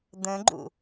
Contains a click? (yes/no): yes